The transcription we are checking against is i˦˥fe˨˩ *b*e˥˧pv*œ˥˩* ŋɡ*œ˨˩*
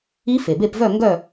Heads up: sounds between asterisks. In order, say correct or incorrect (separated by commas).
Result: correct, incorrect, incorrect